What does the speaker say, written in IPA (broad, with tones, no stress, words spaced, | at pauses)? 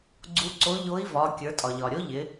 ɡ͡ǀu˨˥ǀo˨˥ʎo˨˥i̯vɒ˩˧ kʲə˞˩˧tʼɒ˩ʎɒ˩ɾʲo˨˥ ʎɪ˩˧